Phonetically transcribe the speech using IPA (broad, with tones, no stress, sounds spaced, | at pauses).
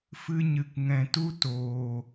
f ɨ˧ ɲ ɨ˨ k ŋ ɛ̃˨ t u˦ t oː˨